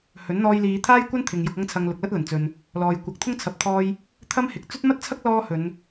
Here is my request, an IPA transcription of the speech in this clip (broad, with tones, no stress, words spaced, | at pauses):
hɵ˨˥nn̪ɔː˧jliː˨˧ t̪ʰaː˥jkʷɐ˥nt̪ʰɪ˨ŋ jʊ˧k̚ɐ˥ŋt͡sʰɐ˧ŋ lʊ˨k̚lɐ˥t̚lɐ˨˩nt͡sɵ˨n | lɔː˨j kʷɐ˨˥k̚t̪ʰʊ˥ŋt͡sʰɐ˨˥p̚t̪ʰɔː˧j | t̪ʰɐ˥m hɪ˨k̚ t͡sɵ˥t̚mɐ˥t̚t͡sʰɐ˥k̚ lɔː˥hɵ˨˧n